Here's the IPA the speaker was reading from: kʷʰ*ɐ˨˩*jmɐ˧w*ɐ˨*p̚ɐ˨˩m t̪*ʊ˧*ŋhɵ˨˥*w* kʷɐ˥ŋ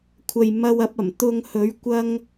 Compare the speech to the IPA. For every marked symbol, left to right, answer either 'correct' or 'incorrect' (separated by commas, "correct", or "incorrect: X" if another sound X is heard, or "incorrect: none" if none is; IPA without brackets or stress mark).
incorrect: ɐ˨, incorrect: ɐ˧, correct, incorrect: ɥ